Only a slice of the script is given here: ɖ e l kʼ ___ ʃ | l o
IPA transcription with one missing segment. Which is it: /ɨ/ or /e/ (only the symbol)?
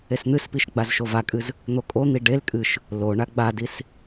ɨ